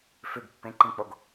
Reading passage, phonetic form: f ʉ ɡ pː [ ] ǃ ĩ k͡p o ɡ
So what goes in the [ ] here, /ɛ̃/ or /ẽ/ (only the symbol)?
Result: ẽ